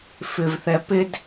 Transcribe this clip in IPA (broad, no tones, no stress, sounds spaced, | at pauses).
f ɪ v θ ɛ p ɪ d